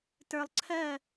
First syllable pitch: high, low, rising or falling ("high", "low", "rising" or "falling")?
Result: low